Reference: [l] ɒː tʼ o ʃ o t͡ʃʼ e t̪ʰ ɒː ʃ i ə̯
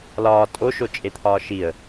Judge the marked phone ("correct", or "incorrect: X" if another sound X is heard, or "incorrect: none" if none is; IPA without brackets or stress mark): correct